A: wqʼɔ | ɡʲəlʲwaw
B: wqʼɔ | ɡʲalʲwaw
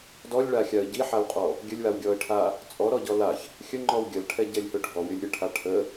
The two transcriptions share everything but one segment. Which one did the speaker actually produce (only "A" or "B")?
A